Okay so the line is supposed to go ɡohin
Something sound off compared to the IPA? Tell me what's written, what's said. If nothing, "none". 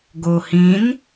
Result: i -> ĩ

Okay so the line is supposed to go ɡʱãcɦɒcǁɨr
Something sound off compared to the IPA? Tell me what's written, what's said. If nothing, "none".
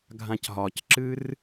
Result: none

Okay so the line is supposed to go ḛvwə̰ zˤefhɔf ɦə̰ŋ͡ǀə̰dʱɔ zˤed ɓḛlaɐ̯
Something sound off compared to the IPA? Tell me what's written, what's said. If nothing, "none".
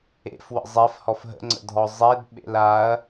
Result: v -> f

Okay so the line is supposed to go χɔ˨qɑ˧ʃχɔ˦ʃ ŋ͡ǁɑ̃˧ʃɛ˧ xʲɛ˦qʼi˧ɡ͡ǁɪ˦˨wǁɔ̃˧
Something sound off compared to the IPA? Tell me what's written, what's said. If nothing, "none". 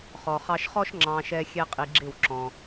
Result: q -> χ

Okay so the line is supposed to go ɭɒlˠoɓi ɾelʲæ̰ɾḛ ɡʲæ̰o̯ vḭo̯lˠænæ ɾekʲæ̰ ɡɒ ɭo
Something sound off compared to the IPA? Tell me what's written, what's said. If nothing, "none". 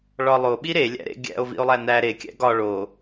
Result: none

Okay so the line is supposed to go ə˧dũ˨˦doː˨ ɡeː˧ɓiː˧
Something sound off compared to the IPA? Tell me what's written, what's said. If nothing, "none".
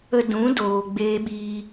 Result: ɡ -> ɡ͡b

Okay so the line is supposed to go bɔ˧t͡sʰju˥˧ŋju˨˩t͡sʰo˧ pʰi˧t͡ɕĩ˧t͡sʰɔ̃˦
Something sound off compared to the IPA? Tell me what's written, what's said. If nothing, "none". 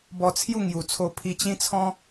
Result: ĩ˧ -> ĩ˦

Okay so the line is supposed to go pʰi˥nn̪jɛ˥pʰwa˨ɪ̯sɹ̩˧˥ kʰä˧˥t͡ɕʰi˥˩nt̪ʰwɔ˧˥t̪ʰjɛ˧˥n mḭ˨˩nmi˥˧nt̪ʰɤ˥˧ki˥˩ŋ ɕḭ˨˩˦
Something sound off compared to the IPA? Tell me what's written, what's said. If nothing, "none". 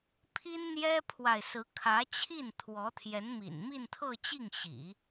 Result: k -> t͡ɕ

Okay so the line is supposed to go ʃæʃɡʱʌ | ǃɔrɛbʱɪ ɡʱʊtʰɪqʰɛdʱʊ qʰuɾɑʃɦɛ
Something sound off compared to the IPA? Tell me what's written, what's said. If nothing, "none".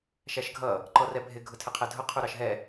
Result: none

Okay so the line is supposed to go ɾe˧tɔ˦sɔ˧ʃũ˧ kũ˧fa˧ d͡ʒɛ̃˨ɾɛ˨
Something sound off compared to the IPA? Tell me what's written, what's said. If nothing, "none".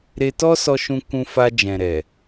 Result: none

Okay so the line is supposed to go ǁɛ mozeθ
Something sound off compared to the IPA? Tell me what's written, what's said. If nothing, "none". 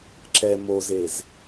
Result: θ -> z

